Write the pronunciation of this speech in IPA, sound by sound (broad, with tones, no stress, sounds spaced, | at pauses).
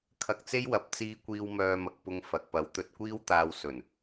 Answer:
kʰ ɐ˧ k̚ t͡s e˥ j w ɐ˨˥ p̚ t͡s iː˧ kʷ iː˧ w m œː˧ m ɐ˨˥ k̚ p ʊ˧ ŋ f ɐ˨ k̚ p ɐ˨˧ w t̪ ɵ˧ t̚ kʷ iː˥ w t̪ aː˧ w s ɵ˨˩ n